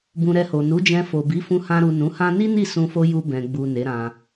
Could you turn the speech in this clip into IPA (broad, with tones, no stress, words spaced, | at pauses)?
bũ˧ɾɛ˧ho˨ nu˨˦d͡ʒɛ̃˧fo˨bi˨˦ fũ˧hã˧ɾu˨ nũ˨˦hã˦ ni˦ni˦˨sũ˧fo˧ ju˧bɛ̃˨ɡ͡bu˨ ne˨˦ɾã˧